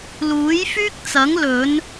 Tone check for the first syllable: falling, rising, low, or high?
rising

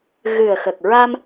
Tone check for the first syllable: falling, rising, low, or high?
low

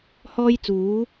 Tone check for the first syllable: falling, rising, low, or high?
high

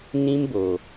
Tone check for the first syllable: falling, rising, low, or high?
high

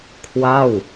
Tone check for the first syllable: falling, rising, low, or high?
falling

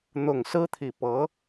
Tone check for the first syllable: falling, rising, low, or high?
low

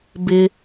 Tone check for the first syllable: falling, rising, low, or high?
high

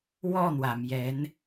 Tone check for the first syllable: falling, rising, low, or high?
falling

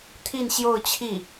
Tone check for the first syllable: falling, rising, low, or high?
falling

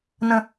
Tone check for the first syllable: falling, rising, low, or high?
high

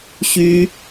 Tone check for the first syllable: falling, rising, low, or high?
high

